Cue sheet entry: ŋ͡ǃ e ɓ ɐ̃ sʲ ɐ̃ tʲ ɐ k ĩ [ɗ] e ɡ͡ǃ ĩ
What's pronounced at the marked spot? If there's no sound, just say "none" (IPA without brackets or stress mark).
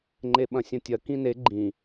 n